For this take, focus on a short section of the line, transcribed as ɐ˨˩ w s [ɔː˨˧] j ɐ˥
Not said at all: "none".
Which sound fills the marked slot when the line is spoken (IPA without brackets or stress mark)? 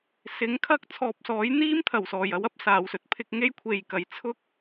ɔː˨˩